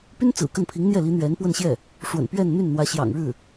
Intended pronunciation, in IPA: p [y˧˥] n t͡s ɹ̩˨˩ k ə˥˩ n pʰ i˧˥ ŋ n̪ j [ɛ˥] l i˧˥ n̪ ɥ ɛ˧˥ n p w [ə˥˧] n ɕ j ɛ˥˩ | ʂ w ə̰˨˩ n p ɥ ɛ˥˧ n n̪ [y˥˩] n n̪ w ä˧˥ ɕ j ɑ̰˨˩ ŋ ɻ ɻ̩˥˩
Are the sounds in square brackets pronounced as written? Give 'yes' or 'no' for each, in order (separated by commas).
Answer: no, no, yes, yes